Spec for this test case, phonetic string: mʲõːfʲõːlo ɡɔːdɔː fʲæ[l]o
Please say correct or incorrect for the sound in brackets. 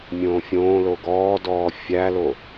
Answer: correct